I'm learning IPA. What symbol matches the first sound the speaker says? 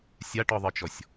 sʲ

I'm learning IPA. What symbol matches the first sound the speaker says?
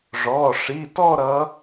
ʐ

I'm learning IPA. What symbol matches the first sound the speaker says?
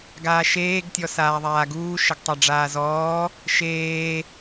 ɡ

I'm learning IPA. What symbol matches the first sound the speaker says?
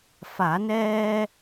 f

